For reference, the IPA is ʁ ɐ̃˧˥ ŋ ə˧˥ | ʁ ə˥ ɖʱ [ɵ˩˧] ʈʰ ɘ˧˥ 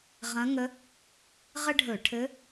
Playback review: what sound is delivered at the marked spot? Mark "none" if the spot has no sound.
ɵ˧˩˧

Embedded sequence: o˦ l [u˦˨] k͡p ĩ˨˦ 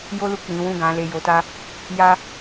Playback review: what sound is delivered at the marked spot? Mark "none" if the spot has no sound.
u˦˨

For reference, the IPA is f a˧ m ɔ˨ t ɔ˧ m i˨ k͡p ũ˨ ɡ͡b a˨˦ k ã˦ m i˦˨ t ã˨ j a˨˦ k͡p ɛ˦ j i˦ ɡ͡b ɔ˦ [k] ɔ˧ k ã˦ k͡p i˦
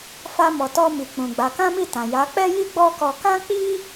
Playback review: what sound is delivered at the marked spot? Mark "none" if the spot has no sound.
k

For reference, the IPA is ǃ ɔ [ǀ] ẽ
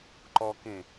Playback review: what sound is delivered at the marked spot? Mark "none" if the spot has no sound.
k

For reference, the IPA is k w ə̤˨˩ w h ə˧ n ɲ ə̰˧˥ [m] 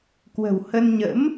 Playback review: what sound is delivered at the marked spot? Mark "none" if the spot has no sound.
m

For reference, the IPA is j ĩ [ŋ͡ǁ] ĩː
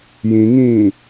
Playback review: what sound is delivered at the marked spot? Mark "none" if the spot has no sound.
ŋ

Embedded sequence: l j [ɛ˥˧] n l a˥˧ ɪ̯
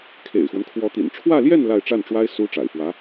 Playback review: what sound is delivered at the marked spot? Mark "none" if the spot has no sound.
ɛ˥˧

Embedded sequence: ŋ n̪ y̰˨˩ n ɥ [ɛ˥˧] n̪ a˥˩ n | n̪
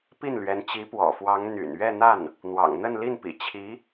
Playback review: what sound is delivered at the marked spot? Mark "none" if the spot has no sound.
ɛ˥˧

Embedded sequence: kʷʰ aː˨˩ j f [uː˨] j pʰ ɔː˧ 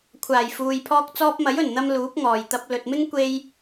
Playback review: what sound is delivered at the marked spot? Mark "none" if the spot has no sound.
uː˨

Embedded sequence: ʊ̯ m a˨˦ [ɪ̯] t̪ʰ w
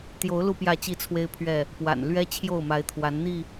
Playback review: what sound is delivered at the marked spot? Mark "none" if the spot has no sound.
ɪ̯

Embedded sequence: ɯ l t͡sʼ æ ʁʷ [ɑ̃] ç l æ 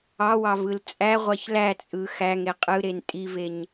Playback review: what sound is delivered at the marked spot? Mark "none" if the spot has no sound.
ɑ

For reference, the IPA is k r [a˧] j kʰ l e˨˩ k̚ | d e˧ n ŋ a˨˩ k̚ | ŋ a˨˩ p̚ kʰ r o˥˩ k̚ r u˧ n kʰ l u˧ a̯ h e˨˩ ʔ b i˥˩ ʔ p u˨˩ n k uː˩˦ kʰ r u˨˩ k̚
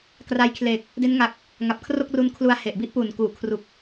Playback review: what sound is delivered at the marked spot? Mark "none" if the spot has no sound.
a˧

